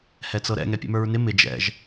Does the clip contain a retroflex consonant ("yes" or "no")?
no